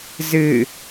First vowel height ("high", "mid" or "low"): high